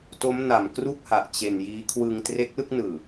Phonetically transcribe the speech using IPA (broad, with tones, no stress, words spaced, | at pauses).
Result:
to˦˥mna˨˩m kru˥˩k̚ha˨˩ʔ t͡ɕe˧n jiː˦˥ kʰwɯ˧ŋtre˦˥k̚lɯ˥˩k̚nɯː˨˩